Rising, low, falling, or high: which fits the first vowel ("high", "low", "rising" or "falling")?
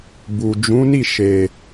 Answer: low